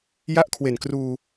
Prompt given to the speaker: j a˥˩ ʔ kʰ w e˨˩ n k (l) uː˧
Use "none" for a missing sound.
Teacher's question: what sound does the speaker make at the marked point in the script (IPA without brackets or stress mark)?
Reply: r